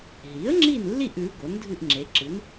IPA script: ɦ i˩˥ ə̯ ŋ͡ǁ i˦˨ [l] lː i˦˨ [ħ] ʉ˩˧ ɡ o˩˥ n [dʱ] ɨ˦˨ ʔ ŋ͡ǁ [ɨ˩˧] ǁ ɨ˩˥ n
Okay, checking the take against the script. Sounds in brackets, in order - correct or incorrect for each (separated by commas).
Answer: incorrect, incorrect, correct, incorrect